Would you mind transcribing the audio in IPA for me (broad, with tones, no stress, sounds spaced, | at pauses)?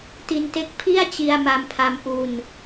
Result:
t i˧ n t e˦˥ k̚ pʰ i˥˩ a̯ t͡ɕ i˧ a̯ m a˧ m pʰ a˧ m ʔ u˧ n